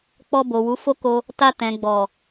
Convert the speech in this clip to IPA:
k͡p ɔ˧ b o˨ w u˨˦ f o˦ k o˧ | t a˧ t ɛ̃˨ ɡ͡b ɔ˨

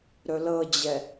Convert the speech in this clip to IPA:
ɾ ɵ l ɤ d͡ʑ ɛ

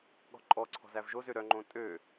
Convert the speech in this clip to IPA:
ɠ ɔ̤ ǃʼ ɔ ǀʰ ɔ̤ z æ v ʒ o z ø ɾ œ ŋ͡ǃ õ tʼ ø

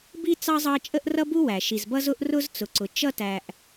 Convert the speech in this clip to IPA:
b i˥ t͡s ɑ˥ zˤ ɑ˦ t͡ʃʼ ə˥ ʔ r ʌ˥ b u˥ w æ˩ ʃ i˩ z b ʌ˦ z ʊ˦ ʔ r ʊ˥ z t͡s ʊ˩ ǀ ʊ˩ t͡ʃ ʌ˥ t æ˨ ʔ

